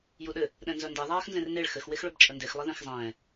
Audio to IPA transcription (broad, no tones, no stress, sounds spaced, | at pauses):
j u ɗ ɘ | ɗ ɛ̃ n z œ n d ɛ ðˤ aː x n z ẽ r n e ɭ x ɘ x w e x ɭ ɵ b t͡ʃʼ ə n d e x lˠ ɘ ð ẽ x zˤ ɛ̃ː